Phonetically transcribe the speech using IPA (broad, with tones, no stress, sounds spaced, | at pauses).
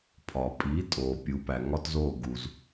pʰ ɒ˩ pʼ i˩˥ tʼ oː˩ pʲ u˩˥ p æ˩ ŋ ɒ˥ t z oː˥˩ ɡ u˩ z